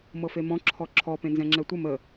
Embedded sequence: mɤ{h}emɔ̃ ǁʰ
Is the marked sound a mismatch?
yes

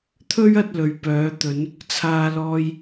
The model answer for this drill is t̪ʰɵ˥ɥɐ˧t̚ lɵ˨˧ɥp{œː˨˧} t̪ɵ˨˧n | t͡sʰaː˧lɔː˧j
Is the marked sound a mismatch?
no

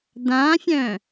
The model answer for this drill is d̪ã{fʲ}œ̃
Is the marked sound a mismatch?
no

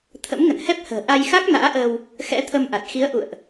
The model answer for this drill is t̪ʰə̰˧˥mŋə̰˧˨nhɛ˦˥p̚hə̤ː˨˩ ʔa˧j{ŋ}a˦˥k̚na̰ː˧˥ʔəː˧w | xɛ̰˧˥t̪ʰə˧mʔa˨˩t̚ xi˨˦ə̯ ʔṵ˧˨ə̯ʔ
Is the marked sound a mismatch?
yes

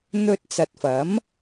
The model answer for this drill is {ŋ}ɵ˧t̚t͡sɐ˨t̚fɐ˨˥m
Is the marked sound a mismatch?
yes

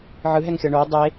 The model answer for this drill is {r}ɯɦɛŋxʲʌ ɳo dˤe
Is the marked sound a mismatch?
yes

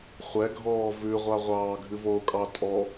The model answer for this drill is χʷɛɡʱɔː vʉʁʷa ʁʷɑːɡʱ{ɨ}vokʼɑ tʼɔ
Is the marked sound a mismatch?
no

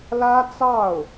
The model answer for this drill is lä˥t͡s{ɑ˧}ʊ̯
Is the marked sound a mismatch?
yes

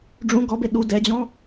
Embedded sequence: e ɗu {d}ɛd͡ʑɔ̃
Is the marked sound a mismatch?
no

